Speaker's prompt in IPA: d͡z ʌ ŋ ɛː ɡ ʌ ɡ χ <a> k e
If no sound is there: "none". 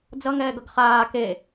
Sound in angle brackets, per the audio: aː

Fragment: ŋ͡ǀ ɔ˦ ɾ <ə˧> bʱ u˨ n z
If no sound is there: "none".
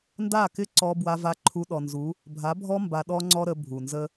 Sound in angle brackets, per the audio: ə˧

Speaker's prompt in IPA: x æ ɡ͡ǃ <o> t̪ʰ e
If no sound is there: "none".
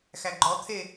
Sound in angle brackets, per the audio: ɔ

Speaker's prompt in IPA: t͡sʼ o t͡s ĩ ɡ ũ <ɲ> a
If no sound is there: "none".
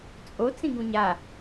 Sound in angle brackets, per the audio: ɲ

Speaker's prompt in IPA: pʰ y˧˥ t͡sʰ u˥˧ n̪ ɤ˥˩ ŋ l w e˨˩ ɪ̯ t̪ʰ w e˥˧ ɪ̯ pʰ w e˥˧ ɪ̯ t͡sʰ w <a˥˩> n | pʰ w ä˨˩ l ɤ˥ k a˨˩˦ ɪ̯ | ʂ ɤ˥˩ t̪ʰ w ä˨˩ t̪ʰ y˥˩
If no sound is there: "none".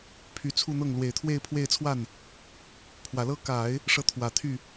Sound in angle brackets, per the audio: a˥˩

